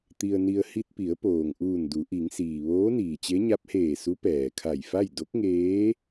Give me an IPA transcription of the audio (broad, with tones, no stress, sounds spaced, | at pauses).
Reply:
t̪ i˧ ə̯ n i˧ ə̯ h i˧ t̚ p i˩˧ ə̯ p oː˩ ŋ ʔ uː˧˩ n d u˩˧ ʔ i˩˧ ŋ s iː˩ ʋ oː˧˥ n iː˩ t͡ɕ e˧˥ ɲ a˧˥ p̚ h eː˧˩ s u˧˥ p ɛː˩ kʰ a˧˩ j f a˥˨ j d o˧˥ k̚ ŋ eː˧˥